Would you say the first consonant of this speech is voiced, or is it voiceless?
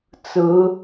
voiceless